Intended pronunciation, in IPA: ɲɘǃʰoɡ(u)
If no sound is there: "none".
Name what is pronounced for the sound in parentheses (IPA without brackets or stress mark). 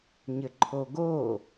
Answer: o